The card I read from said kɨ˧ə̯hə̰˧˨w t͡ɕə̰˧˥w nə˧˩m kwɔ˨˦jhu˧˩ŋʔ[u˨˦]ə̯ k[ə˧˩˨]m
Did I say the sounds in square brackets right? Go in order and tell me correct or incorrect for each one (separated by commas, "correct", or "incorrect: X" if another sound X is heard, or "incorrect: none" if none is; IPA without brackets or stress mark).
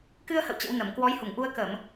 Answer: incorrect: u˧, correct